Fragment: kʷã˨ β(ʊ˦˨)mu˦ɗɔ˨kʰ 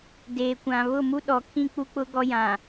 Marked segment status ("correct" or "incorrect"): correct